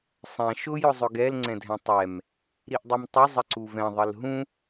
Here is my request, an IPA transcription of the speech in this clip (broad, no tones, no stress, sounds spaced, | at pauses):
sˤ ɛ̃ ʃ ʊ j ʊ zˤ ɵ ɡ ɛ l ŋ͡ǀ ɛ̃ dʱ ɛ̃ tˤ ɛ m | ɾ i ʔ dˤ u m tˤ ʊ zˤ ə ǀ u v ɛ̃ ðˤ ə l ɦ ũ